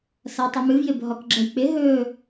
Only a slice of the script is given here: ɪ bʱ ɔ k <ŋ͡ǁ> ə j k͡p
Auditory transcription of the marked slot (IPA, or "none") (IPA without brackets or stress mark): ɡ͡ǁ